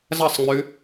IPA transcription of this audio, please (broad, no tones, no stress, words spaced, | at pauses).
zɐsˤŋ͡mʉ